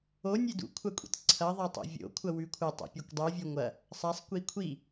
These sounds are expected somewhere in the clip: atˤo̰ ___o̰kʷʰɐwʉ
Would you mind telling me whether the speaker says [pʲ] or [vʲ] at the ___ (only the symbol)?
vʲ